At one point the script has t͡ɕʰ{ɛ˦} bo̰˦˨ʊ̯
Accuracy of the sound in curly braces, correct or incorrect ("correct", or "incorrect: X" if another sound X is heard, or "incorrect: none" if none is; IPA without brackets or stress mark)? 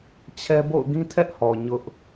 correct